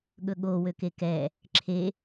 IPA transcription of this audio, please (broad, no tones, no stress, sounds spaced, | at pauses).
ɠ ɵ ɠ o w ø k e k ɛ | ǁʰ e